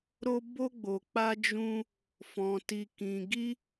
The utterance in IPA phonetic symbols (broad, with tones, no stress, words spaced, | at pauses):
ɾo˦ bo˦ɡ͡bo˧ k͡pa˦d͡ʒũ˦ | fɔ̃˧ ti˧kĩ˧ɡi˦